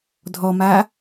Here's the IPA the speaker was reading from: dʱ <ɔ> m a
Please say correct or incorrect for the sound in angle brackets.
correct